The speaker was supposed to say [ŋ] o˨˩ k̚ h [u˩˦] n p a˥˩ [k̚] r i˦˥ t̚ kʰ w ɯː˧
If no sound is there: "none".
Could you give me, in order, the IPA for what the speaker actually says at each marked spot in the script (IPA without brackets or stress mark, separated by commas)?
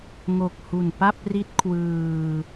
ŋ, u˨˩, p̚